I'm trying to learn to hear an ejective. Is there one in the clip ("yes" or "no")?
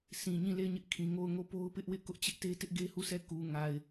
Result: no